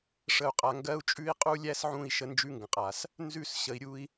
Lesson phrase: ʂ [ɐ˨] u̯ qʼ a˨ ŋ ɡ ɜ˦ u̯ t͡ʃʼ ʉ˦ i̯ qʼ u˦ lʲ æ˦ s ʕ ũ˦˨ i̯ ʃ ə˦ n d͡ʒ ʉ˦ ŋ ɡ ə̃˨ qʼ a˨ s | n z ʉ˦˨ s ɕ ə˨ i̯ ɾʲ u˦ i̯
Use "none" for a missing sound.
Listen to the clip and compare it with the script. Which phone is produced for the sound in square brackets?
ə˨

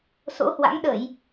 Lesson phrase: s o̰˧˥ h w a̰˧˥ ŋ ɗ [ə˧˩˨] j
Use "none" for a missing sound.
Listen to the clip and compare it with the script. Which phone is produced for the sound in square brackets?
ə˧˩˨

